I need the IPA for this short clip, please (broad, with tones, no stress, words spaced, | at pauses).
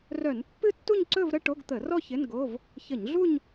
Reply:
rœ˧˩˧npːɨ˥˧tːu˥˧ɲǀɵ˥˧v ɾə˥˧ʈo˧˥˧ɡt̪ə˧˩˧rɔ˥˧ çɪ˧˥˧nɡo˧˥˧v | çə˧˩˧ɲɮu˥˧ɲ